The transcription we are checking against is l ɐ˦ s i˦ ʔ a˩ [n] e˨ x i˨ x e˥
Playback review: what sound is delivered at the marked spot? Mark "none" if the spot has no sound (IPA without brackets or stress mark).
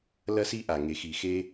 ŋ